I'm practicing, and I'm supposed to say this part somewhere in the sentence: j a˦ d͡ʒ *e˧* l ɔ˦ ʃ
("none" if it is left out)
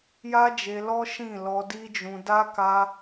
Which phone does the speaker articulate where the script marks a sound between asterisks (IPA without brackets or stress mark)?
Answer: e˧